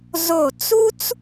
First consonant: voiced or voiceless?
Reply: voiced